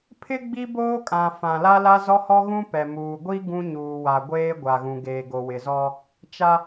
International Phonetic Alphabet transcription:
pʰ ɪ˦ ɡ͡b i˦ b oː˦ kʼ ã˨ f ã˨ l a˦ l a˦ z ɔ˦ h ɔ˦ ɣ ũ˦ p ɛ˨ m uː˨ ɡʷ i˦ ɡ ũ˦ ɲ uː˨ w a˨ ɡʷ eː˦ ɡʷ a˨ ɣ ũ˨ ɡ eː˨ ɡ o˨ w ɪ˨ z ɔ˦ | t͡ʃ a˦

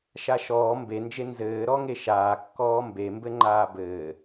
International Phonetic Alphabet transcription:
ʃ a ʃ ɔː m b e n d͡ʒ e n z ɘː ɾ ɔ ŋ e ʃ aː kː ɔː m b e m b ɘ ŋ͡ǃ aː b ɘː

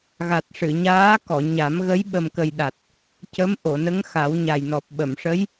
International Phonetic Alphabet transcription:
ɣ a˨˩ t̚ ʂ ɨ˨˩˨ ɲ aː˧˥ k ɔ˨˩˨ ɲ a˨˩˦ m ɣ ə˧˥ j ɓ ə˨˩ m k ə˨˩ j ɗ a˨˩ t̚ | c ə˧˥ m ʔ o˨˩˨ n ə˧˥ ŋ x a˨˩˦ w ɲ a˨˩ j n ɔ˨˩ p̚ ɓ ə˨˩˨ m ʂ ə˧˥ j

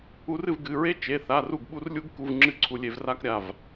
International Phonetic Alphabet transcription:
u˧ r ɨ˥˩ v ɡ ɨ˩˧˩ ɹ e˥ t͡ʃ e˩˧˩ θ a˩˧˩ r u˥˩ ɡ ɓ u˥ r lʲ u˥ ɡ k u˧ v ŋ͡ǁ ɨ˥˩ ǀʰ u˧ lʲ e˧ v r a˥ k ɾʲ a˩˧˩ v

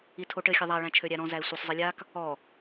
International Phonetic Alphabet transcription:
i tʰ o ʈ ɘ xʲ ɘ ðˤ a ɭ æ̃ t͡ʃʰ ø ɾʲ æ ɾ ɔ̃ z æ ɪ̯ sʷ ɘ sˤ zˤ i lʲ a k | ɔ

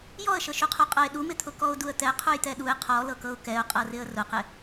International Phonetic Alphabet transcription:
j ɔ ə̯ ʃ ɤ ʃ u qʰ u qʼ ɤ ɪ̯ ɗ u m ɪ t̪ʰ ʊ k ɔ ʊ̯ d u ə̯ t̪ ɛ qʰ u j t̪ ɛ ɗ u ɪ̯ qʰ ɔ l ɤ k ɤ ʊ̯ k ɛ ʊ̯ qʼ ɤ r ɪ ə̯ r ʊ q ɪ

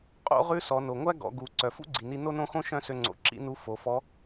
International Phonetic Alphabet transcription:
qʼ o̰˧˥ ʁ ʉ˧˥ s ɔ˩˧ n o˩ ŋʷ æ˥ ɡ ɔ̰˩˧ ɡ u˩˧ ǀ œ˩ f ṵ˥ ɡ͡ǀ i˩ n i˧ n o˥ n õ˥ x õ˥ ʃ œ̃˥ s ø˧ ŋ͡ǀ o̰˩ ǁ ḭ˧˥ n u˧˥ f o˩˧ f ɔ˧˥

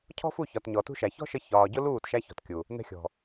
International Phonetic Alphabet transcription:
cʰ ɔ̤˦ f u˦˨ ç ɒ˨ t ɲ ɔ˨ t ṳ˦ ʃ æ˨ ç ɔ̤˦ ʃ ə˧ ç ɒː˨ ɟ ʊ˦ l uː˦˨ t ʃ æ˧ ç ɔ̤˨ t kʲ u˨ | n ɛ̤˧ xʲ ɔ̤˨

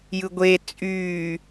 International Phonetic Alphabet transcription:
j ɯ ɡʷ e t͡sʼ yː

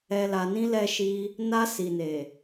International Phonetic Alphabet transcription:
ɛ˨ l a˨ n ĩ˧ l ɛ˧ ʃ i˧ | n a˧ s i˨ n e˨

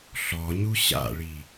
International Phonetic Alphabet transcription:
ɬ ɔ ɲ u ɕ a̰ ɭ i

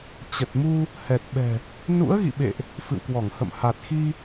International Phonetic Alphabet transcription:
t͡ɕ ə˨˩ t̚ m u˧ | h ɛ˨˩ t̚ ɓ ɛ̤˨˩ | n ṵ˧˥ ə̯ ɣ ḭ˧˨ ɓ ḛ˧˨ ʔ | f ɨ̰˧˨ w k w ɔ˧˩ ŋ h ə̰˧˨ m h a˨˩ t̚ x i˧

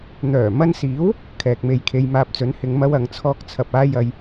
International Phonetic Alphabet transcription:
n̪ œː˨˩ m ɐ˧ n s iː˨˥ w | kʰ ɛː˨ k̚ m e˧ j kʰ e˧ j m aː˧ p̚ t͡s ɵ˨˥ n h ɪ˨˧ ŋ m ɐ˥ w ɐ˨˧ ŋ t͡sʰ ɔː˥ k̚ t͡sʰ ɐ˧ p̚ aː˥ j ɐ˧ j

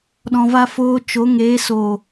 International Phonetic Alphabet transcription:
ɗ ɔ̃˧ v a˦ f oː˧ t͡ʃ o˨˦ ŋ eː˨˦ s o˨

